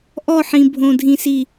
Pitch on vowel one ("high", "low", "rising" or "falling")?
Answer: falling